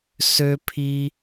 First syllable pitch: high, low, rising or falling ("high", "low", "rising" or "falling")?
high